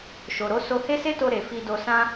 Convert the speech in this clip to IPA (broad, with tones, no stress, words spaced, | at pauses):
ʃo˨ɾo˨˦ so˧he˦se˦to˧ ɾe˨fi˧do˧sã˦